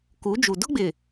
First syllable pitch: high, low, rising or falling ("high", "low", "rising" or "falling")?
rising